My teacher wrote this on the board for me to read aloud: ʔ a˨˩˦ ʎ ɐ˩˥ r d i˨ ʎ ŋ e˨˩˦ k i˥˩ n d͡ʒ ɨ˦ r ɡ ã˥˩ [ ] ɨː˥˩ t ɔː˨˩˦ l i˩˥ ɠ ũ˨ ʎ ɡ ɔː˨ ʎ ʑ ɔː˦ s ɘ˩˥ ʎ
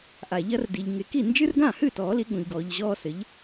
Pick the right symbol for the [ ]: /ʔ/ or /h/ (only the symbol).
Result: h